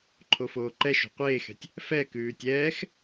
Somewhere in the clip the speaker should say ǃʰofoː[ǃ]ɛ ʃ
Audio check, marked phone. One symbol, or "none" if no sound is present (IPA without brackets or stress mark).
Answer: ǃ